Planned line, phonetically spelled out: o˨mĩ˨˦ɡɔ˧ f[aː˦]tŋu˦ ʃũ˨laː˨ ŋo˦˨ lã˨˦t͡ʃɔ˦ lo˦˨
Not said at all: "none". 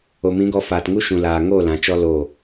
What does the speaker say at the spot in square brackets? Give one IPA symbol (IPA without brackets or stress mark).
aː˨